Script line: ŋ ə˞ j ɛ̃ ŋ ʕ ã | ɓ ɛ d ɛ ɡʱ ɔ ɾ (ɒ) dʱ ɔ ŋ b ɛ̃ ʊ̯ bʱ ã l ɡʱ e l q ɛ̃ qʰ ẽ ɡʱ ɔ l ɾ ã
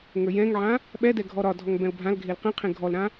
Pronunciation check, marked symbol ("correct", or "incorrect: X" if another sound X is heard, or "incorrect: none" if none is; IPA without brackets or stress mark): correct